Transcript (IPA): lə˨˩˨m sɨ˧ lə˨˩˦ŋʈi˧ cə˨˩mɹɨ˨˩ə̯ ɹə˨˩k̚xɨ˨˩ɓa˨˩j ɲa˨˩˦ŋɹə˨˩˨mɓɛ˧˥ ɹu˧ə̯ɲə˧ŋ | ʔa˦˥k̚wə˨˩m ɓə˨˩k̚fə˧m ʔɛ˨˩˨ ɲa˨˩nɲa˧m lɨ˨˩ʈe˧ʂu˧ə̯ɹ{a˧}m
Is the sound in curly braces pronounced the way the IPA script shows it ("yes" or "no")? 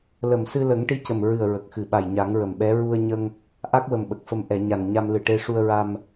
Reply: yes